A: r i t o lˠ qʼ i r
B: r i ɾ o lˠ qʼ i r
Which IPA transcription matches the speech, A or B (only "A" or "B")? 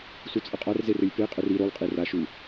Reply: B